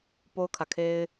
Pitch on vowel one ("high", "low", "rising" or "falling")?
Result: high